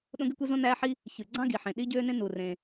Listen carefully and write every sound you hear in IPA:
ɗ õ˥ ɡ y˥ kʷ e˥ z õ˥ n æː˥ ħ i˥ | ç ɯ˩ ɡ͡ǀ ɑ̃˥ ɡ i˩ ħ ẽ˩ ɗ i˥ ɟ øː˥ n ẽ˥ n u˩ r ẽ˩

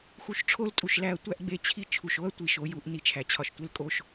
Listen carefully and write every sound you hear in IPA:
x u˧ ʃ ʈ͡ʂʰ o˦ l tʼ u˨ ʃ l æ˧ ɐ̯ tʷ æ˦ ʔ ɡ͡b e˧ t͡ɕʰ i˦ t͡ʃʰ u˨ ʃ o˦ ɐ̯ tʷ i˨ ʃ o˧ j u˧ ʔ n i˧ t͡ʃʰ æ˨ t͡ɕʰ ɒ˧ ʃ tʷ e˦ l kʼ o˦ ʃ

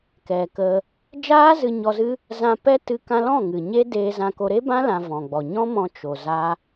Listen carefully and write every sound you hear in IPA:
k ɛ˨ k ə˧ | d͡ʒ aː˦ z ɨ˧ ɲ ɔ˧ z ɨ˦ | z ã˧ p ɛ˦ t ɨ˧ k ã˧ l ɔ̃˦˨ ŋ ɨ˨ ɲ e˦ d eː˧ z ã˧ k o˧ ɾ e˦ b ã˦ l ã˧ v ɔ̃˨ ɡ͡b ɔ˨ ɲ ɔ̃˦ m ɔ̃˧ t͡ʃ o˨ z a˦

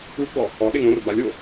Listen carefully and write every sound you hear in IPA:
u ɡ͡b ɔ | ɔ ɗ e ŋ õ r b a lʲ o

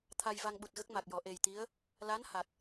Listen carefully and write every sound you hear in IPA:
t̪ʰ a˧ j v a˧ ŋ ɓ u˨˩ t̚ ɣ ə˦˥ k̚ m a˨˩ k̚ j ɔ˨˩˨ ʔ e˨˩ j t̪ i˧˥ ə̯ | l a˧˥ n h a˨˩ t̚

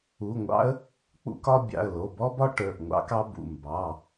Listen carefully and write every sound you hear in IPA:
u˩˧˩ ŋʷ ɑ̰˦ ə̯ | k͡p ṵ˦ k ɒ˦ bʲ ɑ̰˩˧˩ ə̯ l o˩˧˩ b ɔ˦ b ɒ˦ ʈ ə˞˩˧˩ ʔ ŋʷ ɑ̰˦ k ɑ˦ b ṵ˩˧˩ m b ɑ˩˧˩

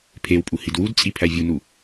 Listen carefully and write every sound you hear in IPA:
pʰ e w pʼ u h i d w u d t͡sʼ i pʰ æ vʲ u n u

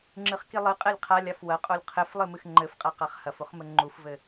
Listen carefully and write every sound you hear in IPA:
ŋ͡ǁ ɨ χ k i lˠ ɨ qʼ ɛ lʲ qʰ a lʲ a f w ɐ qʼ o lʲ qʰ ɘ f lˠ ɨ m ɨ x ŋ͡ǃ ɘ f qʼ a q a χ h ɐ f u χ m ɘ ŋ͡ǃ u f v ɘ

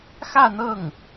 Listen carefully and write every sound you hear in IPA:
x ä˥˧ n̪ ɤ˥˩ ŋ

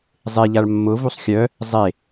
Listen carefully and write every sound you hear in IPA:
zˤ e ʎ a ɭ mː ʊ v u sˤ xʲ œ | zˤ e

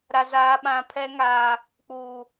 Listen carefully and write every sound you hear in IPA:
ɾ a˦ z aː˦ ɓ ã˦ pʰ ɛ˦ ŋ aː˦ | k͡p uː˦

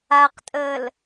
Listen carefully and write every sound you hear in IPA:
a q tʼ əː l

